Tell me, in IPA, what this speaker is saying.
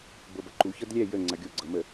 bɤbɐǃu çɤdlʲɛ jə ŋ͡ǀɐɡʲo ɡ͡ǀɤmə

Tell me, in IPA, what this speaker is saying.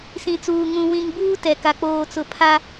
sĩ˨t͡suː˨ ŋũ˨ wĩ˨ŋbuː˦ tɛ˨ka˨ k͡poː˨t͡sʊ˨ pʰa˦

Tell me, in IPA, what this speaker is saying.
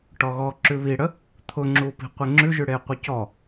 ʈɔɣɔ ǁʉβiɽə | t̪ʰʊŋ͡ǁu pi̤qʷeŋ͡ǁʉʒʉ ɽeqʷəcɔ

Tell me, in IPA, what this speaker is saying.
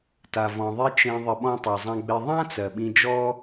ta˨vɔ̃˨ðˤe˦ t͡ʃẽ˧ ðˤə˨ɓɔ̃˧ tˤɜ˨zˤã˧ɡ͡be˧ ðˤã˦ t͡sɜ˨ɓĩ˧d͡ʒɔ˦

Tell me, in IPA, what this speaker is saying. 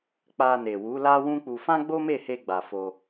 k͡pa˧ne˨ wu˨˦ la˦wũ˦k͡pu˧ fã˦ɡ͡bo˦me˦˨he˧ ɡ͡ba˨fo˧

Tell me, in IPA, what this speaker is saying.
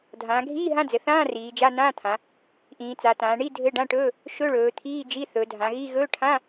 dʱãː˩˧ɡʱiː˧˥˧ ɦã˧˥˧d͡zɘ˩˧θãː˧˥˧ riː˩˧d͡ʒa˧˥˧ nãː˧˥˧t̪ʰã˩˧ | ʔĩː˩˧t͡sa˩˧tãː˩˧ɳi˧˥˧ dʱɘ˧˥˧ɖã˧˥˧ʈɵː˧˥˧ | ʃɵ˧˥˧ɭɵː˩˧ t̪ʰiː˧˥˧d͡ʒi˧˥˧ θɵ˩˧ dʱã˩˧ɣi˧˥˧ ɣɵː˧˥˧ʈʰã˧˥˧

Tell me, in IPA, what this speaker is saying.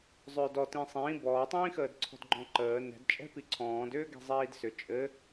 zˤʏːdɔtĩ sˤĩː bɔːtˤĩːxəːd ǀʰɔ̤dɡ͡ǃɔ̃ǃəː nɛ̤dt͡ʃʼɛ̤ piǀʰɔ̃ːd ʏːɡɛ̤zˤiːdsʏ t͡ʃʼɘ

